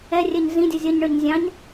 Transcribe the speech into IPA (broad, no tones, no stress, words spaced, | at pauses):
ɛrʲɛɲ zĩdʲʌ zʲʌɲɳə˞ɲ zʲɑ̃ɲ